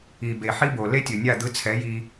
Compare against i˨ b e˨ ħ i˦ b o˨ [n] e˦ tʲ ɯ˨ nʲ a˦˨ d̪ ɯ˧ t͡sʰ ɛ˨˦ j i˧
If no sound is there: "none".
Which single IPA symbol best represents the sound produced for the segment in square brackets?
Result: l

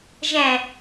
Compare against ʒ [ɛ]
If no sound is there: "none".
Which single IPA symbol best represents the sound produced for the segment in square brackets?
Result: ɛ̃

